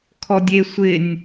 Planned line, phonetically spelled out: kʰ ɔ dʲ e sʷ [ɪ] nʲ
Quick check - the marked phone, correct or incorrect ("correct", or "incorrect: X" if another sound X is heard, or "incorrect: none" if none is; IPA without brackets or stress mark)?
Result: correct